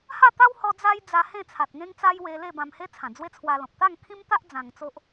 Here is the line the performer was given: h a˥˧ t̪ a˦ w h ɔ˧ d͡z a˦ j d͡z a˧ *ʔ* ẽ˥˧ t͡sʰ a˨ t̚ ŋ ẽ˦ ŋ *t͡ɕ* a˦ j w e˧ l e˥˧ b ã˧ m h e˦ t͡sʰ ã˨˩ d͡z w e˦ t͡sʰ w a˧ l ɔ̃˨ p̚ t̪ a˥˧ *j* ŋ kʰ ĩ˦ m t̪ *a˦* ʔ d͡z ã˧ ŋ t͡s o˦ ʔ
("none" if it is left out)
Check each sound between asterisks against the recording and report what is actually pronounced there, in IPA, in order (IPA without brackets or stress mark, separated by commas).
h, t͡s, none, a˦